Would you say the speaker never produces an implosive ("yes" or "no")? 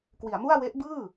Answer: yes